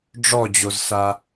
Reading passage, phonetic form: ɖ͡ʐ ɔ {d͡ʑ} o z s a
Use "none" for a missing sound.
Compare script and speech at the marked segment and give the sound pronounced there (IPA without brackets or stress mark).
d͡ʑ